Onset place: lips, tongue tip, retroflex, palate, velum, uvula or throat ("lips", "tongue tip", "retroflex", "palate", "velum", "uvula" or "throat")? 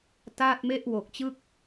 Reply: tongue tip